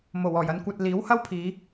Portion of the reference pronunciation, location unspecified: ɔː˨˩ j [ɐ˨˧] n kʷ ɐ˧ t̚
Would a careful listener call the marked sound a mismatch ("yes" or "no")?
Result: no